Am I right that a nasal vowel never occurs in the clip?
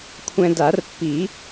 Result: no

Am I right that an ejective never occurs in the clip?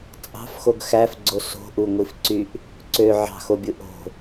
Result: no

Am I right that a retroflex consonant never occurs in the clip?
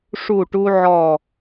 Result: no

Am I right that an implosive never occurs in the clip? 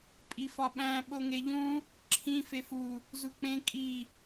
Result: no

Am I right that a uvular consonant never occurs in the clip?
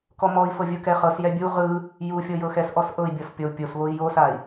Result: no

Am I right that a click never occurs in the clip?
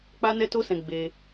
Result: yes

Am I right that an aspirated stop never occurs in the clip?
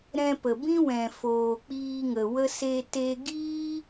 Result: yes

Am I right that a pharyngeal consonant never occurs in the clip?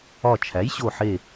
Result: no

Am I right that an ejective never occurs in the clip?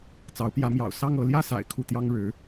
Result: yes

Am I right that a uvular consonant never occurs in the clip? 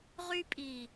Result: no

